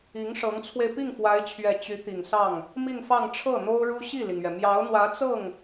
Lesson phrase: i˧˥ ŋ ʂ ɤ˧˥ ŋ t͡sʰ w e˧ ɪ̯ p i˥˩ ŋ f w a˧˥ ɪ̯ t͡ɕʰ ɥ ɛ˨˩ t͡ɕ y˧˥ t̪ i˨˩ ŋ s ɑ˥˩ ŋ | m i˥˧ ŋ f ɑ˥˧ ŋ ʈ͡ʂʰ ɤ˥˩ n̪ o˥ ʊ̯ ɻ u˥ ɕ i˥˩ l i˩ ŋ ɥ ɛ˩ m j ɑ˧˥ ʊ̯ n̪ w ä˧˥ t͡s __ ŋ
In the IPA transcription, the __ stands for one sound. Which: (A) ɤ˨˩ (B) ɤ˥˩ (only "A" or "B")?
B